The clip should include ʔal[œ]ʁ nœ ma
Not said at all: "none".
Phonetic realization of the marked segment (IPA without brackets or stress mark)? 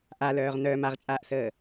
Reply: œː